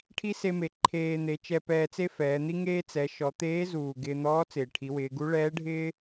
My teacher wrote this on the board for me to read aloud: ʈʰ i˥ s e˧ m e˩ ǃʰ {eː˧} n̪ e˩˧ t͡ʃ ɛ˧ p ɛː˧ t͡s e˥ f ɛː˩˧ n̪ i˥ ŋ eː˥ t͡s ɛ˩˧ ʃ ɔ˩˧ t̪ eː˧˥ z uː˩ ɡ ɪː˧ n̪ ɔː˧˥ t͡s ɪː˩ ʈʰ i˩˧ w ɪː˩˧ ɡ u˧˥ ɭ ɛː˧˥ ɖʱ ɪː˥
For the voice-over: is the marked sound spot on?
yes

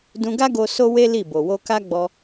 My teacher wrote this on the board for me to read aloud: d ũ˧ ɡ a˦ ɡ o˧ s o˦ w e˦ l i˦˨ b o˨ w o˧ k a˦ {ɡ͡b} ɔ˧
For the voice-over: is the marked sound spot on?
yes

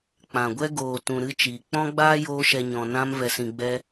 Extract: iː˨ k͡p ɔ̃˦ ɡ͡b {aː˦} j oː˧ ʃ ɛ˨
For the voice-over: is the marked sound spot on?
yes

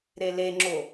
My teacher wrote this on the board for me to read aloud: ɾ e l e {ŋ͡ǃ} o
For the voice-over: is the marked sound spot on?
no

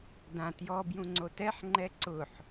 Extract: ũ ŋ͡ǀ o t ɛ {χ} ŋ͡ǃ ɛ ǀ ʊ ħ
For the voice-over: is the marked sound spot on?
no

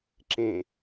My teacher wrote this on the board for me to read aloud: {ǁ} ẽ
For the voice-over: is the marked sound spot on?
yes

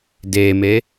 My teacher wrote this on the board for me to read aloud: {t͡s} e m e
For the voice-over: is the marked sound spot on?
no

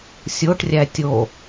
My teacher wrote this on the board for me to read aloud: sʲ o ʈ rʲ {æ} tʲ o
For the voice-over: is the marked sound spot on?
yes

